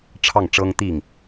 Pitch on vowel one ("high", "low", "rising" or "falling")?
falling